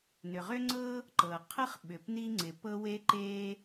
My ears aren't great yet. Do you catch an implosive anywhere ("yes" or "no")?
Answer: yes